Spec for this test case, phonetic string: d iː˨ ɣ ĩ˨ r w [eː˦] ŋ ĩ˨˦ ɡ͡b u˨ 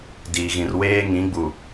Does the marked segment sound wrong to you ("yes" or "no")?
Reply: no